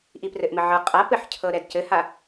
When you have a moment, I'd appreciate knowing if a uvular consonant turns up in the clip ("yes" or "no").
yes